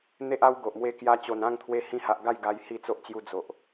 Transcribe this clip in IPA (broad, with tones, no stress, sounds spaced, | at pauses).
n̪ e˦ ʔ a˦ w ɡ o˨ ʔ m w e˦ k j a˦ t͡ɕ o˨˩ n ã˥˧ ŋ t̪ʰ w e˧ h ĩ˧ h a˨ ʔ ɡ a˥˧ j ɡ a˧ j h i˥˧ t͡s o˦ ʔ t͡ɕ j u˧ d͡z o˨ ʔ